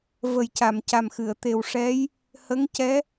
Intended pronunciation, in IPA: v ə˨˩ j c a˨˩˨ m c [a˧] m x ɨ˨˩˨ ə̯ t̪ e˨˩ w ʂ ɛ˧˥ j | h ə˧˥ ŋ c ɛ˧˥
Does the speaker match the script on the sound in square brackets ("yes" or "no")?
no